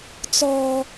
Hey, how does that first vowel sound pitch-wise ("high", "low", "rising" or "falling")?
low